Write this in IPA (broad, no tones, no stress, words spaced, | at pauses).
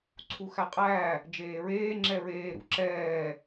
ǀʰuxæqʼæ | d͡ʒeːɹeː ŋ͡ǁɛɹeː ɾṵǁɛː